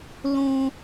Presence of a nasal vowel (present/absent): present